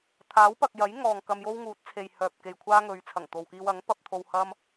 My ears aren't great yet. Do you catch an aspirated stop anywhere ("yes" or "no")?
yes